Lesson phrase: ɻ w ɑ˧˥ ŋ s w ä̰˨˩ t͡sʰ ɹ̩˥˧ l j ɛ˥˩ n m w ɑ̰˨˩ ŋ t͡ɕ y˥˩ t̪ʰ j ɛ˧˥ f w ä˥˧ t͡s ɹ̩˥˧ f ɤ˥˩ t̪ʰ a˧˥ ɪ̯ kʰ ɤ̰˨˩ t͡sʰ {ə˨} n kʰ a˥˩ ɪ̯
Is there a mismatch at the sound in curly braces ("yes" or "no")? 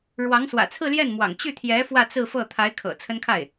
yes